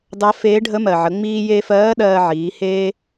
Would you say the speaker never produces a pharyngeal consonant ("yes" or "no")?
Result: no